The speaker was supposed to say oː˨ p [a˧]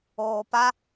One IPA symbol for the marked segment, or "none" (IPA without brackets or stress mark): a˧